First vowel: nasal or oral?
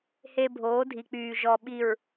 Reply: oral